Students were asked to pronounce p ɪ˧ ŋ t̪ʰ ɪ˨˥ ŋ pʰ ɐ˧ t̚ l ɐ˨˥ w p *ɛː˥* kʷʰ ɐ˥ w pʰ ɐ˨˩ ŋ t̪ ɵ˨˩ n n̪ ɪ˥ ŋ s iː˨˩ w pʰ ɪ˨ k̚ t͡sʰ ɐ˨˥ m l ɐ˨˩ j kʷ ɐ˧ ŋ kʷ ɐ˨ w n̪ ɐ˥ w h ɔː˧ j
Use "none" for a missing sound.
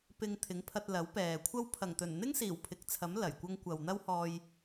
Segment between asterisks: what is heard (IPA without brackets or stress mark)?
ɛː˨